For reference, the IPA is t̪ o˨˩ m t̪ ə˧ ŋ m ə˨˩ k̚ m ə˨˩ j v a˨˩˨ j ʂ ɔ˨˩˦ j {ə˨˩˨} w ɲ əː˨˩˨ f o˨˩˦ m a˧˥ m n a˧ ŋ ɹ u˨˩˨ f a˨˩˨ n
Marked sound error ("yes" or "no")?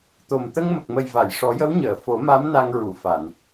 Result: yes